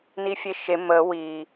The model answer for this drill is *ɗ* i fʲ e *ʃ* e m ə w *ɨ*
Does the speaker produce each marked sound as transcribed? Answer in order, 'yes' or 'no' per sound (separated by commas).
no, yes, no